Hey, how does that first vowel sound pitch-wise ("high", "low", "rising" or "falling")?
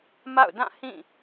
falling